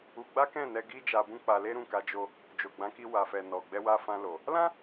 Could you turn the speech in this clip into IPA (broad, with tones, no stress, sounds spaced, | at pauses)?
u˧ ɡ͡b a˦ k ɛ̃˦˨ n ɛ˧ ɡ i˦ d͡ʒ a˧ b ũ˦ k͡p a˧ l e˦ ɾ ũ˦˨ k a˧ d͡ʒ o˧ | d͡ʒ o˨ ɡ͡b ã˨˦ k i˧ w a˨ f ɛ˨ n ɔ˨ ɡ͡b ɛ˧ w a˧ f ã˧ l o˨ | l ã˦